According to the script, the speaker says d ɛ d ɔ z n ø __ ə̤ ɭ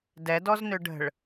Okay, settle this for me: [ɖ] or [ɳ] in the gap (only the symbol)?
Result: ɖ